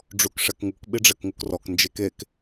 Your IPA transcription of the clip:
ɖ͡ʐ u k ʂ ɛ k ŋ u k ɓ i ɖ͡ʐ ɛ k ŋ u k r ɔ k n d͡ʒ e k e k

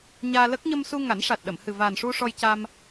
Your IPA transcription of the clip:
ɲ aː˧ l ə˦˥ k̚ ɲ ə˧ m s u˧ ŋ a˨˩˦ n ʂ a˨˩ t̚ ɗ ə˨˩˨ m h ɨ˨˩ v a˨˩ n ʂ u˧ ʂ ɔ˧ j c a˧ m

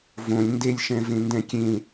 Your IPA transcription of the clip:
v õ lʲ n d e lʲ ʃ ɛ̃ v ẽ n d ɛ̃ kʲ ẽ

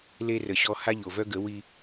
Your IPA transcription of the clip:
l e˦ r ə˨ ɕ ɔ˦ h a˦ ʎ o˨ v œ˦ ɡ ə˨˦ w i˦

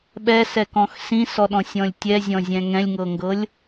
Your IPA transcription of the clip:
ɓ ɛ s ɛ k ɔ̃ x s ĩ s ɔ ɗ ɔ̃ sʲ ɔ̃ lʲ tʲ ɛ zʲ ɔ̃ zʲ ɛ̃ ŋ ɛ̃ lʲ ŋ ɤ ŋ ɡ ɤ lʲ

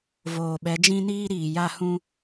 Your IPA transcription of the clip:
v oː˨ ɓ ɛ˨˦ d͡ʒ ĩ˦ n iː˦ ɾ iː˨ j a˦ h ũ˦

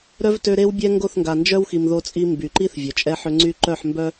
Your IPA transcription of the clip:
ɾ œ˦ v t ø˦ ɾ e˦ w bʲ ɛ˦ ŋ ɡ o˦˨ θ ŋ ɡ a˨ n d͡ʒ œ˦ w x i˨ m ð o˦ t͡sʼ i˦ m b y˨ ǃ i˦ θ vʲ œ˨ t͡ʃʼ ɛ˦ ħ ø˦ ŋ͡ǀ y˦ ǃ œ˦˨ ħ m b œ˦

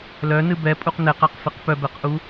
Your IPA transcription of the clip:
l œ n ɨ b ɛ pʼ u q n ɛ q a q f ɨ q p œ b ɛ q ʔ u

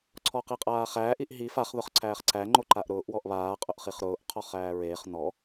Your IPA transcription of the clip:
ǀʰ ɔ q i qʼ aː χ æː ʔ i ʔ ɦ i f a χ ð ʊ χ ǀʰ æː χ ǀ æ ŋ͡ǃ o ǃ a ʔ ɾ ʊː ʔ w ɔ ʔ β aː qʼ ʊ ʔ χ i χ ɾ ʊː ʔ qʰ ɔ χ æː ɹ eː χ n ɔ

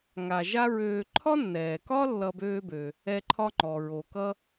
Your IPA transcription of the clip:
ŋ a˨ ʒ a˥ ɹ øː˨ ǃʰ ɒ˥ nː ɛː˩ k ɒ˥ lː ʌ˦ b øː˥ b ø˩ | ɛ˦ ǃʰ ɒ˥ ŋ͡ǃ ɔ˩ ɹ o˩ k ʌ˥

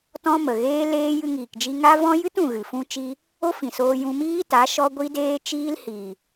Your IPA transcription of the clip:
t ɔ̃˦ m ə˨ ɣ eː˦ l eː˦ j ɨ˧ ŋ iː˨ k d͡ʒ i˧ ŋ a˦ v ɔ̃˦ j ɨ˦ t ũ˨ ɣ ɨ˨ f ũ˦ t͡ʃ i˦ | o˦ f ĩ˨ s oː˧ j ũ˧ m iː˦ t a˨˦ ʃ ɔ˦ ɡʷ i˦ d eː˦ t͡ʃ iː˦ l h i˨

